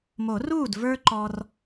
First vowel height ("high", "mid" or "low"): mid